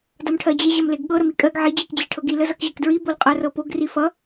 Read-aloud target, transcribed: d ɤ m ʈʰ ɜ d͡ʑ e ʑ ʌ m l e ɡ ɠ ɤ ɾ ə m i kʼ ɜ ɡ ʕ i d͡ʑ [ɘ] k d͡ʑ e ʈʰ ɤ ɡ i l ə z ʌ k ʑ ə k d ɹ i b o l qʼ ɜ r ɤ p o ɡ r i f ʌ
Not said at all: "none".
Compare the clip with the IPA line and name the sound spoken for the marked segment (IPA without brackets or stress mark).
e